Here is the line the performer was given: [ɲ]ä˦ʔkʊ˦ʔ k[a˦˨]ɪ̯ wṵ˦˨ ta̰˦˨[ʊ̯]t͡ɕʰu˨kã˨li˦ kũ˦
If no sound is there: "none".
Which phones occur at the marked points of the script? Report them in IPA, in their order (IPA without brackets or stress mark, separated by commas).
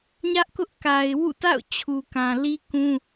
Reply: ɲ, a˨, ʊ̯